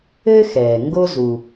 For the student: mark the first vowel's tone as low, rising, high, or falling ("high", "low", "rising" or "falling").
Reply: high